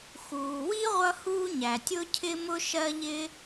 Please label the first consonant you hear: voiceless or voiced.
voiceless